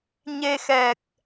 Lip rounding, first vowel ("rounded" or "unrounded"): unrounded